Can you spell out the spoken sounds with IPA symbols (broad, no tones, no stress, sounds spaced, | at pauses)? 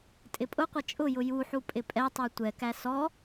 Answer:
tʼ ɪ pʼ ʊ qʷ ʌ t͡ʃʼ ʊ j ʊ j u ħ u pʼ ɪ pʼ ɛ tˤ ə˞ tʷ ɛ k æ s ɔ